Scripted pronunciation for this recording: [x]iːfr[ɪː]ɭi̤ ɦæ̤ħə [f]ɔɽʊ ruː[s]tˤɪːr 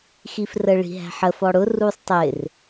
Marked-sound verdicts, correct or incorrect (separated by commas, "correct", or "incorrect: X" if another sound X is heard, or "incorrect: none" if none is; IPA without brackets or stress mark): correct, incorrect: əː, correct, incorrect: sˤ